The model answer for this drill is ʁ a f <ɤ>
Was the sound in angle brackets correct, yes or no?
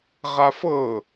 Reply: yes